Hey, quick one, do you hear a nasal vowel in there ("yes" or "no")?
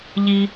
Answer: no